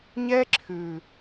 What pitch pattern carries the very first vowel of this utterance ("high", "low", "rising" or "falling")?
high